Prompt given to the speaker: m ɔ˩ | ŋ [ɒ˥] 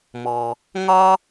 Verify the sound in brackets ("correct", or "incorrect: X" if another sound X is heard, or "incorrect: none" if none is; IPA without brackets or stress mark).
correct